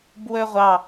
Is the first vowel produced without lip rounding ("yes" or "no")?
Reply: no